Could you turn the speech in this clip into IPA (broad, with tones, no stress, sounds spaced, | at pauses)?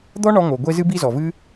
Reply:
d̪ ɔ˦ ɳ ɔ˧ ŋ o˨ ɡʷ e˧ z ɨ˦ b i˦ z ɔ˨ v ɨ˦